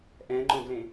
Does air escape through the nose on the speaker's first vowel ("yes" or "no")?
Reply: yes